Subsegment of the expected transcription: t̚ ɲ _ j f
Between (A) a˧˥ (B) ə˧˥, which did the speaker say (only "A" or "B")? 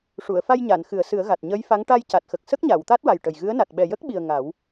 B